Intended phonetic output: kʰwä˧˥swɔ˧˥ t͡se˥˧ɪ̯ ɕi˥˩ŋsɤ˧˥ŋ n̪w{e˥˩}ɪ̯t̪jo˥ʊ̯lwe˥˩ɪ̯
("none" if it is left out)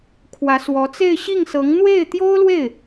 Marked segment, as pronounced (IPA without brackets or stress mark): e˥˩